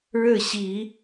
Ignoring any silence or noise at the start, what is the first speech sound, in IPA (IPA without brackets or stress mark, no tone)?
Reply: ɻ